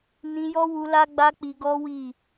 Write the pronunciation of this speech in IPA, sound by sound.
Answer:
n ĩ˧ j ɔ˦ w u˧ l a˦ ɡ͡b a˦ k͡p i˧ ɡ ɔ˦ w i˦˨

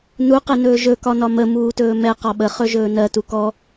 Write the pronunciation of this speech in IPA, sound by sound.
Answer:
n u q ɛ n ɵː ʒ ɵ k ɒ n ɒ m ə m uː t ɵː m ɛ q ɒ ɓ ə χ ɵ ʒ ɵː n ɜ t u k ɔ

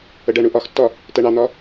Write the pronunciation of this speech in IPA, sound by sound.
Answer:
ə ɖ ɜ ɳ u ʔ ɒ x tː ɒ | t ɜ ɳ ɑ n̪ ɒ

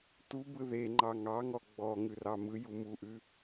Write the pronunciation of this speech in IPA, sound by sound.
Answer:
t u b ɯ ð e ŋ͡ǃ ɑ ŋ ɑ ŋ ɔ ɡ͡b ɔ ŋ ʉ r ɑ m ɯ j u m u ʔ ʉ

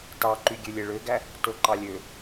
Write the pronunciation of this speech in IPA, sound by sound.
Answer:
t ɑ ǃ y ɡʲ ø lʲ e ɭ ø ɡ æ | t o ǃ ɑ lʲ ø

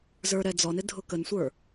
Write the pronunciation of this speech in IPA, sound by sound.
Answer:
z ə˞ ɾ ɛ d͡z ɔ n ɪ dʱ ʊ k ə n sʷ ə˞

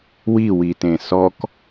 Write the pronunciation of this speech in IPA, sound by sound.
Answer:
w i w i t ẽ s ɔ k

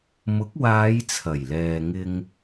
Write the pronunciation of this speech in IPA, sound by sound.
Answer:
m ʊ˨˥ k̚ w aː˨˧ j t͡sʰ ɐ˨˩ j l ɛː˨ ŋ ɪ˧ ŋ

